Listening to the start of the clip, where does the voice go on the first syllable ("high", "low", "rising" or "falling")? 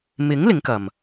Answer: rising